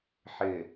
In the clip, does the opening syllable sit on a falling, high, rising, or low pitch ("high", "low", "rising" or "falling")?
low